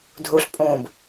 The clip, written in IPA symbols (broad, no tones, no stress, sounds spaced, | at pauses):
dʱ u ɬ pʼ ũː b